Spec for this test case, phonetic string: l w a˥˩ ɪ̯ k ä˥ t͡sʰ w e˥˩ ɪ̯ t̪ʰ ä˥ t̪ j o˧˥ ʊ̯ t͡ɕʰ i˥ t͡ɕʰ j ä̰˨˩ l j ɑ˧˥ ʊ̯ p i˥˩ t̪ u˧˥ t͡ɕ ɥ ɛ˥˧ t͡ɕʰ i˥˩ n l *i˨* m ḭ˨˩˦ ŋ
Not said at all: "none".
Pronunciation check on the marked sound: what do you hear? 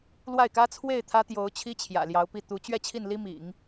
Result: i˥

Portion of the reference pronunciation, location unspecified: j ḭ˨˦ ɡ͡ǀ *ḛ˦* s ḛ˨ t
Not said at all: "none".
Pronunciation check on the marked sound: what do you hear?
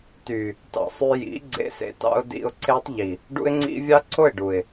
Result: ḛ˧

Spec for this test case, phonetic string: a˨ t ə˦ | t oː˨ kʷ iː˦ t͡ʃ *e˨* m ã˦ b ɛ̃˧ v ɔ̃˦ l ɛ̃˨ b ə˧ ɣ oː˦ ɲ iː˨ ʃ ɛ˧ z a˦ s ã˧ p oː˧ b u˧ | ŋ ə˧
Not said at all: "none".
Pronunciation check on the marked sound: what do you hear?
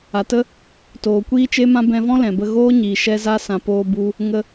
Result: e˦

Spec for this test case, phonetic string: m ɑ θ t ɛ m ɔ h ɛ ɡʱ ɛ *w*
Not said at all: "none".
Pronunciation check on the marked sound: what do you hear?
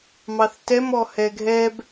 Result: b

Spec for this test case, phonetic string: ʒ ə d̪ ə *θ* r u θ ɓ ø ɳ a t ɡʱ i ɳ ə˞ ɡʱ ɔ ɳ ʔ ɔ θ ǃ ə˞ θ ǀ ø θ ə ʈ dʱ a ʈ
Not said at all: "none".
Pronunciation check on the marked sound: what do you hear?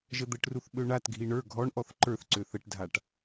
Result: ʈ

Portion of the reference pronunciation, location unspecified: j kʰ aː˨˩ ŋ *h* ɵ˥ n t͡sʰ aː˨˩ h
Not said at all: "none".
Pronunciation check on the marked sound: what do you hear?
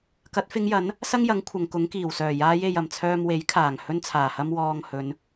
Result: h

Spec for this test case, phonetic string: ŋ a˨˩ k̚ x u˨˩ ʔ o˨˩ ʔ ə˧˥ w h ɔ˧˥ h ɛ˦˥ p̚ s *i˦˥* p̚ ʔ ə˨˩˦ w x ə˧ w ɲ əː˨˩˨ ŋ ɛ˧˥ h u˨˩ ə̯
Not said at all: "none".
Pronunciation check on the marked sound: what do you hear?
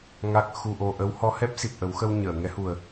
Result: i˨˩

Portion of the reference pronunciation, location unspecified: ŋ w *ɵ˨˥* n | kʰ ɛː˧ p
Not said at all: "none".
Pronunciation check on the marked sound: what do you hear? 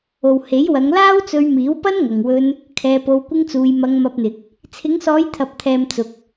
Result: ɵ˧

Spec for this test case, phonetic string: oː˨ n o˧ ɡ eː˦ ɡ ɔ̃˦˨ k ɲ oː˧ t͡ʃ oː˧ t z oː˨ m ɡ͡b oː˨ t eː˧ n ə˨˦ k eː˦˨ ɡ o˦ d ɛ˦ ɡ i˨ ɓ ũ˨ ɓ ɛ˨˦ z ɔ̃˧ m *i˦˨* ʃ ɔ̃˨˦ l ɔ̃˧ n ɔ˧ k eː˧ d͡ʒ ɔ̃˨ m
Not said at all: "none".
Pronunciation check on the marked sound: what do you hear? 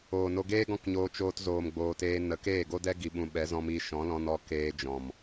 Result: i˧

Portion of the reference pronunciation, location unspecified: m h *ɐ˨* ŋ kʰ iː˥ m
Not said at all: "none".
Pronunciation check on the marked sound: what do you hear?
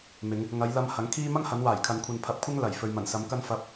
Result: ɐ˨˥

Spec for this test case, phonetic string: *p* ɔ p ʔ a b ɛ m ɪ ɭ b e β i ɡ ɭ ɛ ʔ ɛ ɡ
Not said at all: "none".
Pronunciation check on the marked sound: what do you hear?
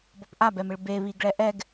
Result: b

